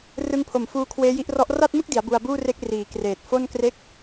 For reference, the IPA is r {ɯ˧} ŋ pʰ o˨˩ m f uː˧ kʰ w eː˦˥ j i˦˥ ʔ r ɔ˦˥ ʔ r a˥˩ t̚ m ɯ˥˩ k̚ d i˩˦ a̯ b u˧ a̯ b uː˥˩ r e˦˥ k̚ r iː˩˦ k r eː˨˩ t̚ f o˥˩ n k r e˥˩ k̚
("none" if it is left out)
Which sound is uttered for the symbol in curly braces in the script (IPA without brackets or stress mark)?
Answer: ɯ˧